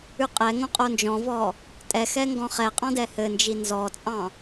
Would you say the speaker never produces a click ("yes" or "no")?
yes